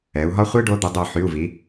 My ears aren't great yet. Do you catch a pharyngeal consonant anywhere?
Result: yes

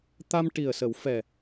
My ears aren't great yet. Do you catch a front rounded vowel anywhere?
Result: no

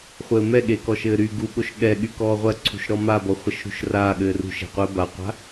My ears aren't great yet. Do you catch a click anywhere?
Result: yes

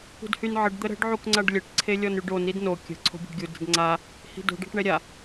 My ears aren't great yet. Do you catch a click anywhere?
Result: yes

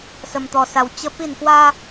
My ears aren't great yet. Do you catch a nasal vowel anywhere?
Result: no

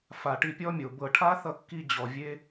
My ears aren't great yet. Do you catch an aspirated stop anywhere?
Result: yes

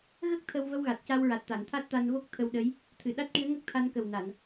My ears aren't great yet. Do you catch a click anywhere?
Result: no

